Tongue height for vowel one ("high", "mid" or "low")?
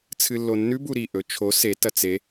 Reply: high